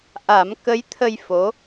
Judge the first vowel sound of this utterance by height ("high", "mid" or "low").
low